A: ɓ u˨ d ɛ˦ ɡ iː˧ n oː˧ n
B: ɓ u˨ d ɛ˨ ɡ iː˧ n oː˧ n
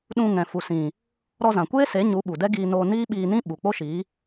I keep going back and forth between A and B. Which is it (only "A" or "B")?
A